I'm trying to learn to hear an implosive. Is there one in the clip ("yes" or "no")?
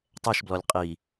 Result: no